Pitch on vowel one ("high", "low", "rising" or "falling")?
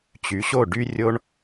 rising